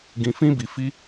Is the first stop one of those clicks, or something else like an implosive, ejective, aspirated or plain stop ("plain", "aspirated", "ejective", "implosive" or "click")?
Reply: plain